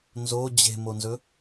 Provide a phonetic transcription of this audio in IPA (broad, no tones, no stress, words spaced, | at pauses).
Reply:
nzo d͡ʑe̤monzɵ